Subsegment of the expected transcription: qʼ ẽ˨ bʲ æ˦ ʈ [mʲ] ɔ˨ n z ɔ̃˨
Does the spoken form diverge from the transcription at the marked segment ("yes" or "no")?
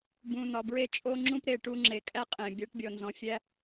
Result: yes